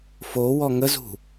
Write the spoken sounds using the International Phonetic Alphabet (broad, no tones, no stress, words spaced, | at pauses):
fowɔ ŋəzṳ